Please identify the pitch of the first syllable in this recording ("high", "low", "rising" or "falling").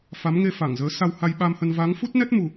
rising